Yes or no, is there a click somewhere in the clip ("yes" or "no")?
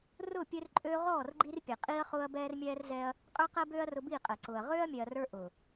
yes